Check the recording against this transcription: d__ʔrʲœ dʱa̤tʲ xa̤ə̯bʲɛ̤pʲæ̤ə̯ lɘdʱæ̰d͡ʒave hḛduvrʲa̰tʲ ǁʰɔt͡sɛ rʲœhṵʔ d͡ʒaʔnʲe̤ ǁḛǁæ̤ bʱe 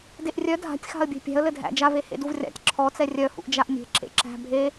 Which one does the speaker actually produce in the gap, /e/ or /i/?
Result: e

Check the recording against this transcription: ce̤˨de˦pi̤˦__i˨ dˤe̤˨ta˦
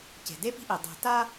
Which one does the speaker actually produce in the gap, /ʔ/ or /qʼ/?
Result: ʔ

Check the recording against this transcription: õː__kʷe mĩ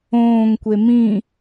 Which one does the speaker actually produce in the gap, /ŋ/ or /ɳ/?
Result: ŋ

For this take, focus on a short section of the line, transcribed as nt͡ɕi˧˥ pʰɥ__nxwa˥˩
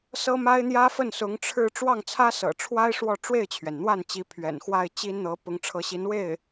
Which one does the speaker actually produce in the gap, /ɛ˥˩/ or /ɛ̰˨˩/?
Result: ɛ̰˨˩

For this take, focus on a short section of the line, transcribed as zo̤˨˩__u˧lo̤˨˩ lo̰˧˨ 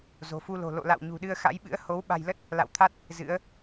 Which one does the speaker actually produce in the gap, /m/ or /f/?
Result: f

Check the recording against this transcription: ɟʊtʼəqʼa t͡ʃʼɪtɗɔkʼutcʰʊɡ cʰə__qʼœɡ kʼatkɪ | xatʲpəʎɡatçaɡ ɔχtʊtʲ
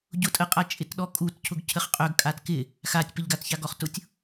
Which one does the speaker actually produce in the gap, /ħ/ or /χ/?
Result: χ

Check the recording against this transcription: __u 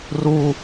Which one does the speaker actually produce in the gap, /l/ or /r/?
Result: r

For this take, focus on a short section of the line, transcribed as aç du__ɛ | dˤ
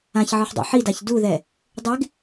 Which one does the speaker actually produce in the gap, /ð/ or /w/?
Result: ð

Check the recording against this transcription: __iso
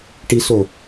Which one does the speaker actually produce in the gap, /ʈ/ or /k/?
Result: ʈ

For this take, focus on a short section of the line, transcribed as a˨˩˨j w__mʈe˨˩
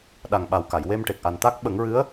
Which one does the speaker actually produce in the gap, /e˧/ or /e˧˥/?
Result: e˧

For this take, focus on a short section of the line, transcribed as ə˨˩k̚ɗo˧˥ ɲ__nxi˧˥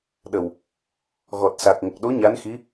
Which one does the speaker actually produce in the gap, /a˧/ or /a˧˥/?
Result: a˧˥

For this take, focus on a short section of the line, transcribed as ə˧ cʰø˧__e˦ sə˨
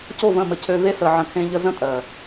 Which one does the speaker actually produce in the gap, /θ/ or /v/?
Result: v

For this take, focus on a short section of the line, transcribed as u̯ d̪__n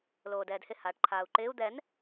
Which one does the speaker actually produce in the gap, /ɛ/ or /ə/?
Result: ɛ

